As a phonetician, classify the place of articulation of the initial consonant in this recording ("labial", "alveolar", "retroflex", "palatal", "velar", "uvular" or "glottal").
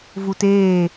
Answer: labial